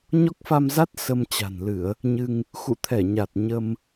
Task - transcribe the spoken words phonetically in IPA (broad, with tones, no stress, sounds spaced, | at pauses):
ɲ ɔ˦˥ k̚ f a˧ m z a˦˥ t̚ s ə˧ m t͡ɕ a̤˨˩ n l ɨ˧˩˨ ə̯ | ɲ ɨ˧ ŋ | x ṵ˧˨ t̪ʰ ɛ˧˩ ɲ a˨˩ t̚ ɲ ə˧ m